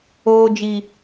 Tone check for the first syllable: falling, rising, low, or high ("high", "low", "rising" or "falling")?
high